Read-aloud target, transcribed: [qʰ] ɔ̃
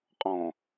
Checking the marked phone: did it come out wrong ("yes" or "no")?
yes